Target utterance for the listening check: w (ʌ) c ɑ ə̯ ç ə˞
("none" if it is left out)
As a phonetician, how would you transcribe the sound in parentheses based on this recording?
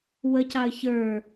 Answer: ə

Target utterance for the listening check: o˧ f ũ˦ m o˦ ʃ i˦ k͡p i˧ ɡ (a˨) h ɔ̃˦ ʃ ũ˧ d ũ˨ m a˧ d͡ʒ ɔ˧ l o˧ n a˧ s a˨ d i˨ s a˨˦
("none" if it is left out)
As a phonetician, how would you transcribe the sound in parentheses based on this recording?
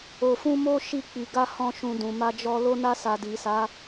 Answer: a˦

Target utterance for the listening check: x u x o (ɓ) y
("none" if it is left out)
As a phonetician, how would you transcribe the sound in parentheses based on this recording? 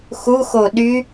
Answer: ɗ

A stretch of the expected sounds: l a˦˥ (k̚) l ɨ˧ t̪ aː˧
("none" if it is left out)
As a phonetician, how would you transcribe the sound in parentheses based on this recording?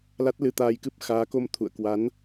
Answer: t̚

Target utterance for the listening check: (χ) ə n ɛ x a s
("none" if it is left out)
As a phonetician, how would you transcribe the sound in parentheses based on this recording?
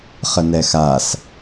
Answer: χ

